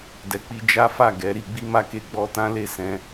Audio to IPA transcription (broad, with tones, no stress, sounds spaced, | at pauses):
d ɛ˨ k͡p i˧ d͡ʒ a˦ f a˦˨ ɡ ɛ˨˦ ɾ i˧ ɡ͡b i˦ m a˦ k e˧ ɡ͡b ɔ˦ t ã˦ l e˦˨ s ɛ̃˧